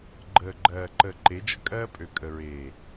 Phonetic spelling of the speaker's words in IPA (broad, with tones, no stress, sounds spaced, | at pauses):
ɡ͡ǃ əː˨ ɡ͡ǃ ɜː˨ ǃ əː˨ ǃ e˨˦ d͡ʒ ə˦ kʼ ɜː˦ pʼ ø˨ kʼ ə˨ ɹ eː˨